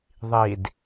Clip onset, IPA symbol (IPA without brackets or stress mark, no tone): ðˤ